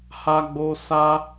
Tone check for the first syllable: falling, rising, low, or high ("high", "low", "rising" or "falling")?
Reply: high